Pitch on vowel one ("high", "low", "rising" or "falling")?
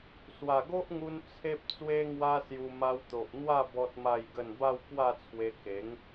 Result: low